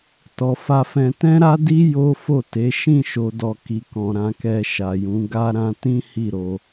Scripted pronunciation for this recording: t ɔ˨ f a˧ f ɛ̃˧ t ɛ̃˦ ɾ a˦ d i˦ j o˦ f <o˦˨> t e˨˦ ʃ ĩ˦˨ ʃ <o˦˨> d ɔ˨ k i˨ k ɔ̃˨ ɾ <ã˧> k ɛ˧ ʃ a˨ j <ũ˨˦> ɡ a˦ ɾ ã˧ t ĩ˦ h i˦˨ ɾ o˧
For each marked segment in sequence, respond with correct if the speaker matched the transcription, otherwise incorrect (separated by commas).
correct, incorrect, correct, correct